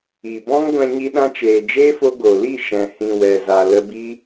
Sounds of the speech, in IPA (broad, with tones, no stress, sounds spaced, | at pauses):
i˨ b ɔ̃˦ ŋ ɡʷ ɛ̃˧ ɲ i˧ ɗ ã˧ t͡ʃ eː˨ d͡ʒ eː˦ f o˧ ɡ o˨ l i˦˨ ʃ ɛ̃˨ h ĩ˨ w ɛ˨ z a˨ l ə˧ b i˦